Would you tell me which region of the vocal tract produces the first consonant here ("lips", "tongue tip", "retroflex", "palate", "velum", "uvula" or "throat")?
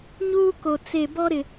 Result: palate